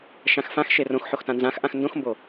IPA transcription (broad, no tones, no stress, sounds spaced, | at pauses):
ʃ ã x f ã x ʃ e r õ x ħ o x t ã n z ã x ʔ ã x n d õ x m b o